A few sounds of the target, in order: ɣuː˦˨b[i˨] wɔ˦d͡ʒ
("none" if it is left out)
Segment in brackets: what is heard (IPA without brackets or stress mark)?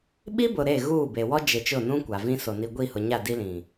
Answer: e˨